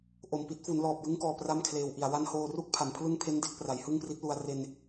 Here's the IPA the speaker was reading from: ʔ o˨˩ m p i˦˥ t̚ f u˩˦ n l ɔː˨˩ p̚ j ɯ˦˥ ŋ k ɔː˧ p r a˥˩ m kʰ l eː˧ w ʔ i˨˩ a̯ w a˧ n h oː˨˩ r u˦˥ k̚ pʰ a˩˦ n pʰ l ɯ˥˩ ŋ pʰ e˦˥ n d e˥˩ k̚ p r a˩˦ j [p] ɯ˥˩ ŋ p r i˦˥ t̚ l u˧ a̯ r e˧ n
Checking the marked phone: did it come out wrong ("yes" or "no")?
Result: yes